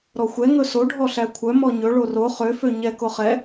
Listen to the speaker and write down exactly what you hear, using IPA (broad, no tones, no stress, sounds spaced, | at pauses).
ɾ ɔ xʷ ɛ ŋ ɵ s o ɖʱ ɔ ɬ æ kʷʰ œ m ɔ ɲ ɵ ɭ o r o χ ø f ø ɲ ɛ k o χ ɛ